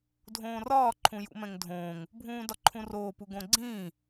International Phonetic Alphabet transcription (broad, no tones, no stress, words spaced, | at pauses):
dʱõːrɒː ǃʰũjṵmɛ̃ŋdʱõːŋ | bʱũːdɒǃʰũroː puɡõɡ͡ǀĩː